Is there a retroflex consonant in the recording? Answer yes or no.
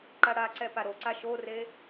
yes